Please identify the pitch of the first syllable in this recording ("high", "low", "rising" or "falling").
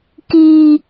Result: low